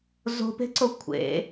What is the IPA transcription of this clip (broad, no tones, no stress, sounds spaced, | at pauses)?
z o̤ p e̤ ǀ o kʷʰ ḛ